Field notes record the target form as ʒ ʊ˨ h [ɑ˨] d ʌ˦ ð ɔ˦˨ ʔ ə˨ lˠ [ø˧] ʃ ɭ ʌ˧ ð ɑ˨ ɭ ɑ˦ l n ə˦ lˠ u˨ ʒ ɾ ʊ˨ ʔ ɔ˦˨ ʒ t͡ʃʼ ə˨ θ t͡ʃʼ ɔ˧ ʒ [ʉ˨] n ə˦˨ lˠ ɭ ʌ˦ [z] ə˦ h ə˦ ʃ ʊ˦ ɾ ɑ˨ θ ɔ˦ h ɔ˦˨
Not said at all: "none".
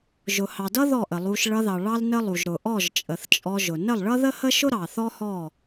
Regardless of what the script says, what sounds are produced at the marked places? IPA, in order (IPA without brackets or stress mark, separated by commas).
ɑ˨, u˧, ʊ˨, ð